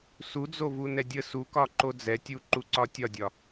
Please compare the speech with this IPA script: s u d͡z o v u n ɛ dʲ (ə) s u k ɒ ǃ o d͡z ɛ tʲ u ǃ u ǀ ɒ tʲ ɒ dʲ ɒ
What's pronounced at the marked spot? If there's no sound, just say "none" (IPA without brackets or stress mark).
ə